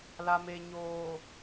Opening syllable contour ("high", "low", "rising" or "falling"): low